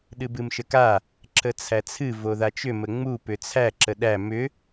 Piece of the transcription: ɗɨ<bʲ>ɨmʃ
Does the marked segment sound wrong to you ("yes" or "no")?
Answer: yes